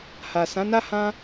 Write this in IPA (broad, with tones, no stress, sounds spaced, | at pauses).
h a˨ s ã˨˦ n a˦ h ã˦